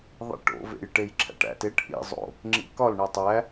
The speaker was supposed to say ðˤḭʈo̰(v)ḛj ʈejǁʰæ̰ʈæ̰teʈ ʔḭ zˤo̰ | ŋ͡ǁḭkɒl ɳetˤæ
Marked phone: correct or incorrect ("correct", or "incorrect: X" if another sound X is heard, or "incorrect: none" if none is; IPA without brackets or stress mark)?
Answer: correct